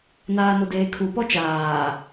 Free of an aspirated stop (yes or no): no